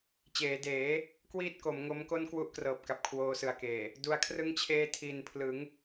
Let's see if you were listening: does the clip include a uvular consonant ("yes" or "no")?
no